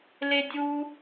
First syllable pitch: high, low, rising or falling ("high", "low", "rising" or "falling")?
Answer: high